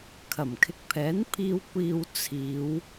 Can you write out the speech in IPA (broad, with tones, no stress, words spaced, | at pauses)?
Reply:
kʰɐ˨˩mkʰɪ˨˥k̚pʰɛː˨˥npʰiː˧w kʷiː˨w t͡sʰiː˨˧w